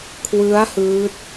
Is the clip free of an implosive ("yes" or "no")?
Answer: yes